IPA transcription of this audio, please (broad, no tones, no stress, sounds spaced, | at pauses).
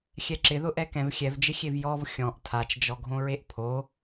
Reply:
xʲ ɛ ǁ ɪ ð ʊ ʔ ɛ k ɛ̃ v xʲ ɛ v d͡ʒ ɪ xʲ e v j ɔ v xʲ ɔ̃ ʔ tʰ a t͡ʃ d͡ʒ ɔ ɡʱ õ ɹ e ʔ pʰ o